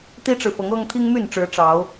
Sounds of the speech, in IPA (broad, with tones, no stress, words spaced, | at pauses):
t̪i˦ʈ͡ʂɻ̩˨fɤ˨˦ŋɤ˦ŋ t̪ʰi˦ŋmy˥˨nʈ͡ʂɻ̩˨˦ ʈ͡ʂɑ˨˦ʊ̯